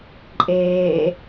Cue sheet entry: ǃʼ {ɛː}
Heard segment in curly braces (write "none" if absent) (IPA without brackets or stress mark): eː